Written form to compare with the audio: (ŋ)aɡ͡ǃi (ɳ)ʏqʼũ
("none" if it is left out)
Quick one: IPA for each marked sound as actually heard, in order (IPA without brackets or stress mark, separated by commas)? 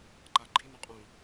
ǃ, n